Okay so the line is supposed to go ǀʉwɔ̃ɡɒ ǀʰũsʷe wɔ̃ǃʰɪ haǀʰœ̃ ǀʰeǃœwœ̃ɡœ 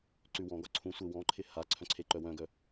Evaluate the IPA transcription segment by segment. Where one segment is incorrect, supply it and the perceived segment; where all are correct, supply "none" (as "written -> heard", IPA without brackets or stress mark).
none